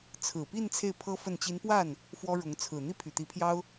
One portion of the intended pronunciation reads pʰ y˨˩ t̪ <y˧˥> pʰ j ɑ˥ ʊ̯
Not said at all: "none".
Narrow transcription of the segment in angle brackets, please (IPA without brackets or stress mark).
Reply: i˧˥